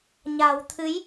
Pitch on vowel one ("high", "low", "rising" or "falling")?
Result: low